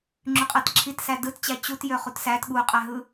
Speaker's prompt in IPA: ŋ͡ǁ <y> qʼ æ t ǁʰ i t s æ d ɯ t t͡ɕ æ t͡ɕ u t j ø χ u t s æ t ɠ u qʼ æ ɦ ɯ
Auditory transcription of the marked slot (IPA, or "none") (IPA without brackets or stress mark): y